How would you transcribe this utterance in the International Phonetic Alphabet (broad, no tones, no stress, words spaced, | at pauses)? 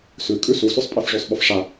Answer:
sʉkʼʉ susʉsˤpʼef ʐʉsˤɓʊfʂa